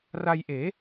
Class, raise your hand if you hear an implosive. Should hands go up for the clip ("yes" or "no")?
no